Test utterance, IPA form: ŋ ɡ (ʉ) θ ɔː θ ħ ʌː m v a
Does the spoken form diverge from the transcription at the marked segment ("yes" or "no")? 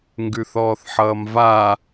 no